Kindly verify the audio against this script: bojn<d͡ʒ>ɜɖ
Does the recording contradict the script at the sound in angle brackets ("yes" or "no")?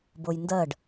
yes